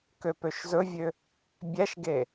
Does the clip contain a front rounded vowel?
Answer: yes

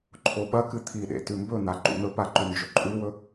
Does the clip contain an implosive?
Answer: yes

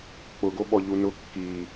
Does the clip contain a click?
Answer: no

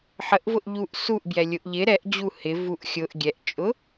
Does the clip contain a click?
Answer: no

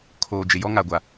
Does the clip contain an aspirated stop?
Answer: yes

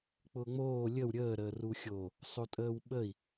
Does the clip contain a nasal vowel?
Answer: no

